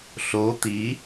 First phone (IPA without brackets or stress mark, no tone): ɬ